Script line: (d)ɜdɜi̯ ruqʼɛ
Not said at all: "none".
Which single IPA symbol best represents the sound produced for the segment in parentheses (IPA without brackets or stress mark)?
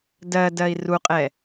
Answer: d